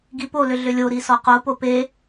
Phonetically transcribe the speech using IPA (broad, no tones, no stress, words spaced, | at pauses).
ɡipolʏ ɮʏlʲoɾi sɔqopo pe